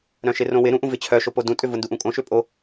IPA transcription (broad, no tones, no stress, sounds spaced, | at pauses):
ɾ œ̃ ʃ ɪ r õ w ɪ ɾ ũ ʔ ũ v ɪ t͡ɕʰ œ ʃ o p o d ũ tʼ ʏ v ʊ n d u ʔ ũ kʼ õ ʃ ʏ pʼ o